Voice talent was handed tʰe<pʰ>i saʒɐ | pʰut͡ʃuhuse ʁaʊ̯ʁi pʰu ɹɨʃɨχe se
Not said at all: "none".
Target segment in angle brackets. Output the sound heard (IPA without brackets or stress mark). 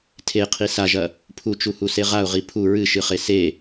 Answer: qʰ